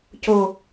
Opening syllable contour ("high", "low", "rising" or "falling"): low